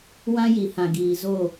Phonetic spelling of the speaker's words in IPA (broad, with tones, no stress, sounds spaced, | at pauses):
w ã˦ j i˨ h ã˨ ɡ iː˨ z o˦˨